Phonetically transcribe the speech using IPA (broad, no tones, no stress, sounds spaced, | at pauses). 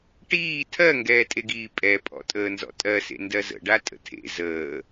ʈ iː tʰ ɜ ŋ ɡ ɛː tʼ e ɡ iː pʼ ɛ pʼ ɔ̰ tʼ əː n z ɔ̰ tʼ ɜ s ḛ n d ɜ z ə̰ ɖ a tʼ ə̰ tʰ ḛ z əː